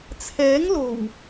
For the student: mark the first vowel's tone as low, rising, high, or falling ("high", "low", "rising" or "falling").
rising